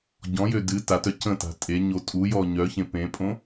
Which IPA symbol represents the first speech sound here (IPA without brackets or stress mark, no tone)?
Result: ɟ